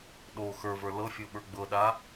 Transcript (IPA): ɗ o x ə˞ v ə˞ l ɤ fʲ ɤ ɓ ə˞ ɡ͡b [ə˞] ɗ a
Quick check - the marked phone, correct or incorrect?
incorrect